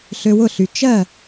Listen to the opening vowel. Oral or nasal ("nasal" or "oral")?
oral